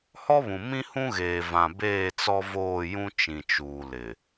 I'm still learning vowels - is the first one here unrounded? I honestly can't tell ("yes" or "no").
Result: no